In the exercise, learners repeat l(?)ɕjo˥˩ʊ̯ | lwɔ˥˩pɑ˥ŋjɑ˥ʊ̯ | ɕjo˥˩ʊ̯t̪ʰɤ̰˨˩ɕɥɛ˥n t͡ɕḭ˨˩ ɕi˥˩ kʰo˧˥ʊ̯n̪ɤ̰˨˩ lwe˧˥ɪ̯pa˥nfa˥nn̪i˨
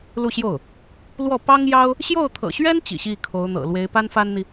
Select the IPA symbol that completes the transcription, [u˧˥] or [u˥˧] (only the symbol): u˥˧